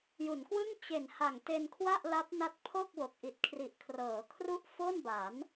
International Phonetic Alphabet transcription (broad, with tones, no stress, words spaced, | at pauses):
ju˩˦nkwɯ˥˩ŋ t͡ɕe˨˩nha˨˩ŋ te˧nkʰwa˥˩ʔla˦˥p̚ na˦˥t̚pʰo˥˩k̚wo˨˩k̚ ʔi˨˩t̚kʰri˨˩ʔkʰrɤː˩˦kʰru˥˩ʔ fo˥˩nba˩˦n